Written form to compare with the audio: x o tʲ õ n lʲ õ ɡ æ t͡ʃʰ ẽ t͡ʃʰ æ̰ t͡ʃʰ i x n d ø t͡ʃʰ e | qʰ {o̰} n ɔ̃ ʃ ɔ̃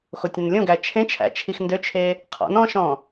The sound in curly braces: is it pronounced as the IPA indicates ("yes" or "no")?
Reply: no